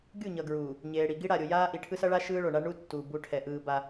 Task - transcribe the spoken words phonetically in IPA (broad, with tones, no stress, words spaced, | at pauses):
ɡʲu˦˨ɲʌ˨ɡɹuː˨ | ɲeː˨ɽi˨ ɡi˦ɽa˨ɾʲo˨jaː˦ ʔi˨ʈʰɯ˦sʌ˦ ɭa˦ ʃɯː˦ɭo˨ ɳa˦ ɳu˦tːu˨ bu˦ʈʰɛ˨ʔɯː˦ ba˦